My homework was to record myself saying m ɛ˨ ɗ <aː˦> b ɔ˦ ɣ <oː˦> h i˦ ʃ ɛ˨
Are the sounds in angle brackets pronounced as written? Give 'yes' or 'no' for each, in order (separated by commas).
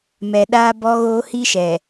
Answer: yes, yes